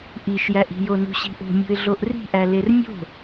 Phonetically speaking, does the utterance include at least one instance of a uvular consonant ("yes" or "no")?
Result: no